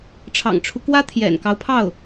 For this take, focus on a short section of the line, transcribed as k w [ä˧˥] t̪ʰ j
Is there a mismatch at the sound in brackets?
yes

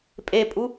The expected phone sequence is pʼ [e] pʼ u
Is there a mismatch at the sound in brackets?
no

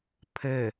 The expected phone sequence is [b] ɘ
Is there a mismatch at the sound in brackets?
yes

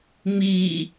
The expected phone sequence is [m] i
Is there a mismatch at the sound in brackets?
no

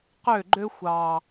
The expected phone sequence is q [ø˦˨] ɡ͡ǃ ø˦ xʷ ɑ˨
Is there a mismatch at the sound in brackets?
no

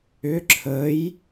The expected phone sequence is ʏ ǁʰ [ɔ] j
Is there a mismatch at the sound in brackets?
yes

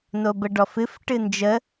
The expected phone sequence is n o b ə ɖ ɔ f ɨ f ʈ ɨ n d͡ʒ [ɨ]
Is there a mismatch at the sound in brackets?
yes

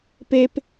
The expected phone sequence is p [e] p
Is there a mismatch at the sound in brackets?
no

